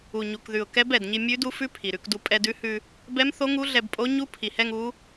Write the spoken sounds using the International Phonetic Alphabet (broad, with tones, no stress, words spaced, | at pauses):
u˨˩ɲu˨˩kðʉ˨˩ʊ̯ kɛ˧˥bɛ˨˩dɲi˧ mʲʉ˧˥du˧˥ fʉ˧˥ pʰi˨˩ɾʉ˧kdu˧ pʼɛ˧dʉ˧˥ hʉ˧ | bɛ˧˥mθo˧˥ŋu˧˥ ɮɛ˧bpʼo˧˥ ɲu˧˥pʰi˨˩hɛ˧ŋ u˧˥